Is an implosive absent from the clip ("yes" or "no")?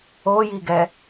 yes